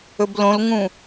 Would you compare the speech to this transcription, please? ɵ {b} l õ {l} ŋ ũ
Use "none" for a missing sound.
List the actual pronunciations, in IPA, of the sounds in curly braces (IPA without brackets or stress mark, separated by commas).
b, l